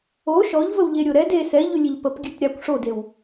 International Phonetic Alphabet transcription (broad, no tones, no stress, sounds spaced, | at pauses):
o ʃ ɔ ʎ v ə w ʎ e ɾʲ o ɾ ɛ d e s ɛ ʎ ʉ lʲ e ʎ p ə p ɡʲ ʉ t ɾʲ a kʷ ʂ o d e w